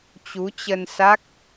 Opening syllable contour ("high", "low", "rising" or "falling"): rising